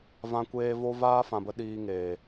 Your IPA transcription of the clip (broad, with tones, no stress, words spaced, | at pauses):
vã˧kʷeː˧vo˦ vaː˦fã˨bə˧ ɗiː˧ŋeː˨